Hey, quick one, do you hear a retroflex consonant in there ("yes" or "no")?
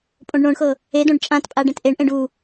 yes